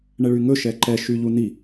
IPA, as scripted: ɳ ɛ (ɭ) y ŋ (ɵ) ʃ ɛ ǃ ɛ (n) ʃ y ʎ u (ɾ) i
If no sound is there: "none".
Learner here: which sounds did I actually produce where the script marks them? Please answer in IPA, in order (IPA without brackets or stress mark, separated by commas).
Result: ɭ, ɵ, none, n